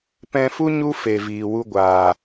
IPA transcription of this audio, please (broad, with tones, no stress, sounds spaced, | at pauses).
p ɛ̃˧ f u˦ ɲ u˦ f e˨ v iː˨ w u˧ ɡʷ aː˨